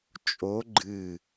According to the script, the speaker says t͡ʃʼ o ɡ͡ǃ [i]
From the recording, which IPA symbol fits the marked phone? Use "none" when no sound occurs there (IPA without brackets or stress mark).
ɨ